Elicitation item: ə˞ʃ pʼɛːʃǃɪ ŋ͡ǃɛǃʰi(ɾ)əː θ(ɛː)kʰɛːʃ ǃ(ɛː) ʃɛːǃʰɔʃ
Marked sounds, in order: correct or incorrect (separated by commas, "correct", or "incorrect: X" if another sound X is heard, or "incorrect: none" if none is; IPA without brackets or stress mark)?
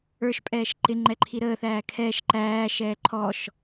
correct, incorrect: æː, incorrect: æː